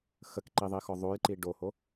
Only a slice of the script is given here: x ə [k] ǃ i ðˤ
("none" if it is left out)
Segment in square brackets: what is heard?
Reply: k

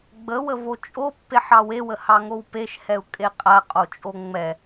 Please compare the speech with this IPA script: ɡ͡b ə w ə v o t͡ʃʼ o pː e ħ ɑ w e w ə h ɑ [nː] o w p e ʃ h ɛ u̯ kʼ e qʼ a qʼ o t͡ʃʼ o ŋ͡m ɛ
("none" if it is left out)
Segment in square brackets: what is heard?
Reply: ŋ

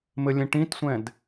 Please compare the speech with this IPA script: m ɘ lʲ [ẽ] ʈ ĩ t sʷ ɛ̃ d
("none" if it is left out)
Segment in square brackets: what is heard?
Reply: ẽ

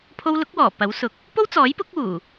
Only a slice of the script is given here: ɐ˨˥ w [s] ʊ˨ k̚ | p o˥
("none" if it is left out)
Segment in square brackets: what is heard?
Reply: s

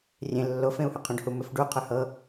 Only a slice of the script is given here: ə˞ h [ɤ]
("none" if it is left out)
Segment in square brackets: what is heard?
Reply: ɤ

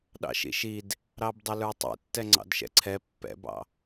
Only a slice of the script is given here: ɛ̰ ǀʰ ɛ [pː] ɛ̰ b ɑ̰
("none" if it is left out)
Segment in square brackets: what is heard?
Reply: pː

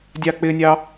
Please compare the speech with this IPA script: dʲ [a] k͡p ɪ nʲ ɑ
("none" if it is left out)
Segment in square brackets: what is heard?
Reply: ɑ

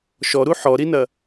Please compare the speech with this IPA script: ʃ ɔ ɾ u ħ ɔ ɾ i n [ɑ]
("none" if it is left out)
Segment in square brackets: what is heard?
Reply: ɐ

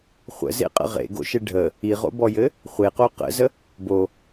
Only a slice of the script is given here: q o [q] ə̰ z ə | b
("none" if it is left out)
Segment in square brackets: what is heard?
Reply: q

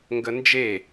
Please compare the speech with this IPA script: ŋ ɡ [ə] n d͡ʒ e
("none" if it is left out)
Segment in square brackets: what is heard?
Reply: ə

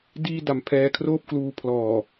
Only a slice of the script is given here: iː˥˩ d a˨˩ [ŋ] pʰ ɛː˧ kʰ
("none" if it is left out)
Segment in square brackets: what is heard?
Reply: m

